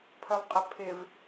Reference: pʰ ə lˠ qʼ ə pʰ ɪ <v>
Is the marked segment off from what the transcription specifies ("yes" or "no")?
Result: no